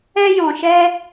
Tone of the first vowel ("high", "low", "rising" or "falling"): high